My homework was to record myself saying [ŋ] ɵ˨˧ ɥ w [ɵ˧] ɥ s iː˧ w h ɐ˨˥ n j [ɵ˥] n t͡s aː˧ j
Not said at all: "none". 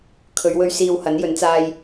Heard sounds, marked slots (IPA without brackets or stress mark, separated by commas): kʰ, ɵ˧, ɵ˨˥